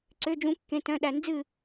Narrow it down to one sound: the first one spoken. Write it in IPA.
ǀ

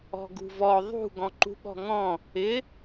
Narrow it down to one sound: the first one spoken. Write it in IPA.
ɔ̤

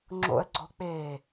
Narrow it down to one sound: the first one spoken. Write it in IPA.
ŋ͡ǁ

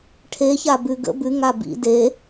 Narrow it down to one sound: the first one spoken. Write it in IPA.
ʈʰ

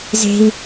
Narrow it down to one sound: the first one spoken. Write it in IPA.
z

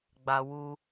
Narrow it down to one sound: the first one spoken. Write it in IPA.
ɡ͡b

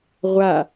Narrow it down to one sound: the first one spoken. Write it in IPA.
ʁʷ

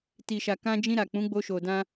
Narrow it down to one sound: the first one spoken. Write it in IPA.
t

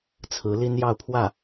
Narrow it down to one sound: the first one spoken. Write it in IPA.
t͡sʰ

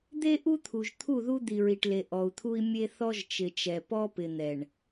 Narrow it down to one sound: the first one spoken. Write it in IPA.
d̪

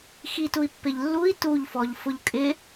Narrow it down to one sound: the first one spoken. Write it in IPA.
x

